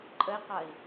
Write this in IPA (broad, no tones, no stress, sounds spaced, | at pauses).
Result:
ǃʼ ə i̯ q ɐ i̯